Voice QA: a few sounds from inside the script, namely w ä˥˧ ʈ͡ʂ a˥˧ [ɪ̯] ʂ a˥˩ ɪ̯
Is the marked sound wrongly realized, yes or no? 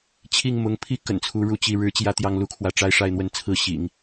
no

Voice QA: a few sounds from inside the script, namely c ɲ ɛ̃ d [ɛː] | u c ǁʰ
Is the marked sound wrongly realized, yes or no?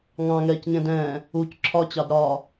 yes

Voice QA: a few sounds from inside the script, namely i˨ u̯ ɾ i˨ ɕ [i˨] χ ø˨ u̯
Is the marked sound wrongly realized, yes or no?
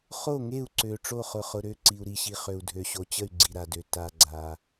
no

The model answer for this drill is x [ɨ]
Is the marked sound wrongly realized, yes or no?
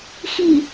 yes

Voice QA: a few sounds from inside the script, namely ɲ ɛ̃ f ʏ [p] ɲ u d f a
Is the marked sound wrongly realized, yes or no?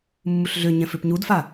no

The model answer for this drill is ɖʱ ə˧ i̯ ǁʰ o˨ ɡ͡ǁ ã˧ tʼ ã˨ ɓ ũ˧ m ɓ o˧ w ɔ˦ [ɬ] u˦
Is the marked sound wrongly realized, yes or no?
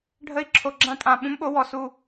yes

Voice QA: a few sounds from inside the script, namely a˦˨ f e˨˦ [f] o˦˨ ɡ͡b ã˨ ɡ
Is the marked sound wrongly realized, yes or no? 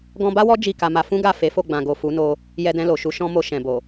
no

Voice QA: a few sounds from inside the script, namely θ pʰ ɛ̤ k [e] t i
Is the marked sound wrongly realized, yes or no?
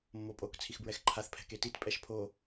no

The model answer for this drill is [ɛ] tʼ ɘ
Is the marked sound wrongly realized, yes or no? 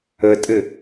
yes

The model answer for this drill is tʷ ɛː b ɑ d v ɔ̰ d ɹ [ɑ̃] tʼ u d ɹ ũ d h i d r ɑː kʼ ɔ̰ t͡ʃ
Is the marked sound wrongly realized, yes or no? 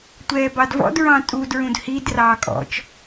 no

